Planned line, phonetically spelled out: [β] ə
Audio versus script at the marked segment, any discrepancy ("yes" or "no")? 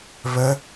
no